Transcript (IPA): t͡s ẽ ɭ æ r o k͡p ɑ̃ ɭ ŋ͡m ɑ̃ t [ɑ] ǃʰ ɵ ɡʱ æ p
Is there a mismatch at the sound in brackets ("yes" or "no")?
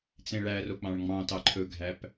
no